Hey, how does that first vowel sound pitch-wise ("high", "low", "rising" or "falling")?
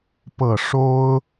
low